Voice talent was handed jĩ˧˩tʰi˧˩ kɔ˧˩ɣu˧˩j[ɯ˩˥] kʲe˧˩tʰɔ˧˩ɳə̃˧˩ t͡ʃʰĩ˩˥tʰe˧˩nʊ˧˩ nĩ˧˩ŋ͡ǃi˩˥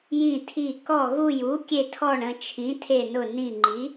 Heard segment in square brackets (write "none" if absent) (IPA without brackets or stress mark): u˩˥